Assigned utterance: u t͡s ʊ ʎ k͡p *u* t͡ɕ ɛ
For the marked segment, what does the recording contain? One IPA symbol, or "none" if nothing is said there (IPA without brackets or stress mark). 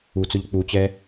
u